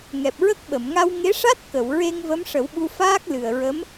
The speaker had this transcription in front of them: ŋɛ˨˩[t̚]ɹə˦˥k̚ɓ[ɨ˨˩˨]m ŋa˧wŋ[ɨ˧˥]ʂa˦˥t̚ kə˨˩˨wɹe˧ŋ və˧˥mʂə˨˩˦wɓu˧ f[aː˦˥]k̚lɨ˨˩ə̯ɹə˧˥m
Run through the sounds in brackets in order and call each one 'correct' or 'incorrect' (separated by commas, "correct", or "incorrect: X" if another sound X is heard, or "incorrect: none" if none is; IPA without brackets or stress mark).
incorrect: p̚, incorrect: ə˨˩˨, incorrect: e˧˥, correct